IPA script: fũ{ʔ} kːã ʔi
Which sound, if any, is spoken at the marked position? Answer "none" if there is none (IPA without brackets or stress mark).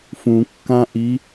none